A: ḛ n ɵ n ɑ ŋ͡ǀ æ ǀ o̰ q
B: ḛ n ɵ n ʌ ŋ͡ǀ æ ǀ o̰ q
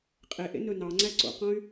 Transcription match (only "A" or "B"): A